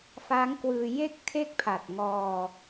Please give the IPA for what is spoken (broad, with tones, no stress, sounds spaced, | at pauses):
f a˦˥ ŋ k w ɯː˧ j e˥˩ k̚ tʰ e˥˩ k̚ pʰ a˨˩ t̚ ŋ ɔː˧